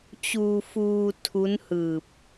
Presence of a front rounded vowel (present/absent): absent